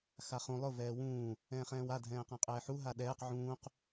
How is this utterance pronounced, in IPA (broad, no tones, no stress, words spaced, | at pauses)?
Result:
xaχũ lˠʊ vɛːwũː | ɛ̃ːχɛ̃ːwa dʱɛ̃ːqãqʼɛːħu ɦaɗɛːq ʕũːq